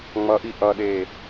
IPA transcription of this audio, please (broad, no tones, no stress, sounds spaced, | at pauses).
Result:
ŋ͡m ʌ ʔ i ʔ ʌ ɗ e